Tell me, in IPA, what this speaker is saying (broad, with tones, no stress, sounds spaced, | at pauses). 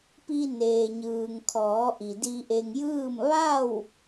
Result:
p i˧ n eː˩ ɲ ɯː˩ ŋ kʰ ɔː˩˧ ʔ i˩ d i˧ ʔ e˧ ŋ j ɯː˥˨ m ʋ a˥˨ w